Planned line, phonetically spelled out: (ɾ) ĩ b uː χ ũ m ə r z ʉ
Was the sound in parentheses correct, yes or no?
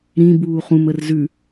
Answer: yes